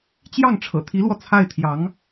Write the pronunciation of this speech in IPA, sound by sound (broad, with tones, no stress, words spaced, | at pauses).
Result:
t͡ɕjɑ˥˩ŋʈ͡ʂʰɤ̰˨˩t̪ʰi˧˥lwɔ˧ t͡sʰa˥˩ɪ̯t̪ʰjɑ˧˥ŋ